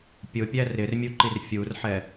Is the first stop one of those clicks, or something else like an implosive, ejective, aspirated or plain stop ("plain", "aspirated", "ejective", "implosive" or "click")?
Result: plain